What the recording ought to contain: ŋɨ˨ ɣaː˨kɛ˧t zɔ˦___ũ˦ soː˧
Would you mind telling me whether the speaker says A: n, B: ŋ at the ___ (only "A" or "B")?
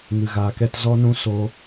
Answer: A